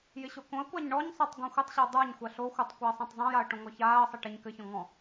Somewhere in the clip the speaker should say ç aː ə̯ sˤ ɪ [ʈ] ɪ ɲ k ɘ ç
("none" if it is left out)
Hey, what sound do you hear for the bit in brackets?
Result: ʈ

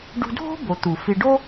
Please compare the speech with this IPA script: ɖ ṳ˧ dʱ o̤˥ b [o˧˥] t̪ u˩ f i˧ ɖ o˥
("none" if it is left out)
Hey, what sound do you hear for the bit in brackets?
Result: o˩˧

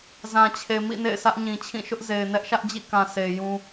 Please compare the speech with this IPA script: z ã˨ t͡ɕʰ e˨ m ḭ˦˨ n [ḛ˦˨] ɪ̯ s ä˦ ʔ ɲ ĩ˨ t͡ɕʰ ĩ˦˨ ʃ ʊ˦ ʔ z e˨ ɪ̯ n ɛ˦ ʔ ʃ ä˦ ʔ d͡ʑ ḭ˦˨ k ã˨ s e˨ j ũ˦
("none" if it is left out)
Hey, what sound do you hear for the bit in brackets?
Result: ḛ˦˨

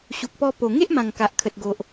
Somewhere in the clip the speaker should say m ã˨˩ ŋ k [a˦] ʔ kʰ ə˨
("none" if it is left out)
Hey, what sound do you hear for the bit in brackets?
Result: a˨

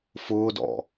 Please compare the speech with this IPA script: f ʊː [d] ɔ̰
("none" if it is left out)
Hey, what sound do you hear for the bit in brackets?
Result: d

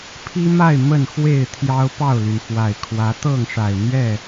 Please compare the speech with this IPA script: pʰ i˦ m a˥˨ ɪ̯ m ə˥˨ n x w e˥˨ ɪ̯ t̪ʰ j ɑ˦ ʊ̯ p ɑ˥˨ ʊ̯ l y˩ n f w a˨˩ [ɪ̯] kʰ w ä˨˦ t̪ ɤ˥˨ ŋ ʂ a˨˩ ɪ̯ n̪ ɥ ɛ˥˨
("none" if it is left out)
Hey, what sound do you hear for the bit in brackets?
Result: ɪ̯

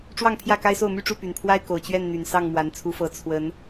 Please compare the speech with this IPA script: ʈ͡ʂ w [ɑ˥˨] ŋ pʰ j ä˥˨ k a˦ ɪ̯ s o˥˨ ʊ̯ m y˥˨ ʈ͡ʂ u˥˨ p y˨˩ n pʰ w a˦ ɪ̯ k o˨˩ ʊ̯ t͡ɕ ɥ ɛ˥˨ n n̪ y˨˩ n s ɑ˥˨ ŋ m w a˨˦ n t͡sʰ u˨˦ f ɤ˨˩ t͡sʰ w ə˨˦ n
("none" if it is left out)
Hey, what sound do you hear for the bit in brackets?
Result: ɑ˥˨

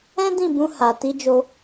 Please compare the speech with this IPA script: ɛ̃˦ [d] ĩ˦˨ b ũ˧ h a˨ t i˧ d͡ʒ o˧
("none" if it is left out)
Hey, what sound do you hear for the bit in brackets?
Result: d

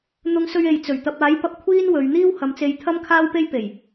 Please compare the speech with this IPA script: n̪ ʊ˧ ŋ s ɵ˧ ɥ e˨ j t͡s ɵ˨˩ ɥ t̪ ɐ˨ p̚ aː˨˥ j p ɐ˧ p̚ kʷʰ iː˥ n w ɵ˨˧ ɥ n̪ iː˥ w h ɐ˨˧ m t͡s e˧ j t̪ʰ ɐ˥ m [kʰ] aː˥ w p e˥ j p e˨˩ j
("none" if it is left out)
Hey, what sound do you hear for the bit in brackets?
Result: kʰ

